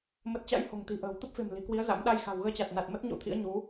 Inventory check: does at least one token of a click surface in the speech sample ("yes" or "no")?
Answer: no